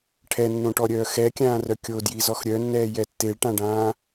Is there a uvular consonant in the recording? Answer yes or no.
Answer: no